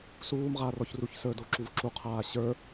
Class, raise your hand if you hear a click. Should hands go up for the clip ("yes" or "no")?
yes